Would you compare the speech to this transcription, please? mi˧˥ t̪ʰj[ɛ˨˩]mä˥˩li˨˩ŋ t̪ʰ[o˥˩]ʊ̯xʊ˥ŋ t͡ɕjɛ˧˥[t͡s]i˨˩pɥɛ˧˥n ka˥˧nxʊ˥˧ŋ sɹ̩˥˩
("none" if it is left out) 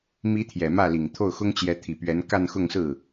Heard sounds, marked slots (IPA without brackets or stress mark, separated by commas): ɛ˨˩, o˥˩, t̪ʰ